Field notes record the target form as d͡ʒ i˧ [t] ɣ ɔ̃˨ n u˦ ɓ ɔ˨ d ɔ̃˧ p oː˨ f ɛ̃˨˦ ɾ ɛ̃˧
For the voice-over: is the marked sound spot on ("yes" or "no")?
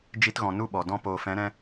yes